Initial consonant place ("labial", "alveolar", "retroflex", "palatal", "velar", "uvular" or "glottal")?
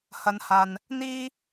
glottal